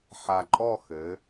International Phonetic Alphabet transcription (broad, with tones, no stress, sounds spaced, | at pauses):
ħ a˨˩ ǃʼ ɔ˥˧ x ɘ˩˧